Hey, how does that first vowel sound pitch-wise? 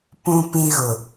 low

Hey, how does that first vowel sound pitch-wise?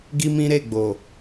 high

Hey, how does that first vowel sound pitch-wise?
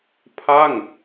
falling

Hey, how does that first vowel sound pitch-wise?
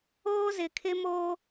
high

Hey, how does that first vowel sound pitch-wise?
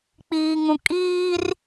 low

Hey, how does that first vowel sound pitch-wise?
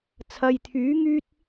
low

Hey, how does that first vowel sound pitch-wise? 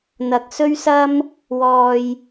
low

